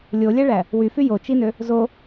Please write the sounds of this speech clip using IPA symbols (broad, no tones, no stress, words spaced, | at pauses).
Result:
lʲolʲæɭæ | wyfy jot͡ʃinø | zo